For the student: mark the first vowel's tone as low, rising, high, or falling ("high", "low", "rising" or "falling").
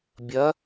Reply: rising